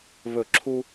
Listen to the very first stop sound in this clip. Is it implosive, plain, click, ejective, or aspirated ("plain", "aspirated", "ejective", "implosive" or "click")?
click